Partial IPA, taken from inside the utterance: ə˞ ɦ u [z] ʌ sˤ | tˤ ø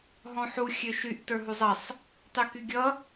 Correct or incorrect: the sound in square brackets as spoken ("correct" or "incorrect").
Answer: incorrect